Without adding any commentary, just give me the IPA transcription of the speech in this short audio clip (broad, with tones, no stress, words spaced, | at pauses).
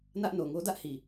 nä˦ʔno˨ ŋo˦dä˦ʔhi˨